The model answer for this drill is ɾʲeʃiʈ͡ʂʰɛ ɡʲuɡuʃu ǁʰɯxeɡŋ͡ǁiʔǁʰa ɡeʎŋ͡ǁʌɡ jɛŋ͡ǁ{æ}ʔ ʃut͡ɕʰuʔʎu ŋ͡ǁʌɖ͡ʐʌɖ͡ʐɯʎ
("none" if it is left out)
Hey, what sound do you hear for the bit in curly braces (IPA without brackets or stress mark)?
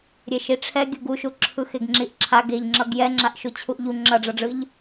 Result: a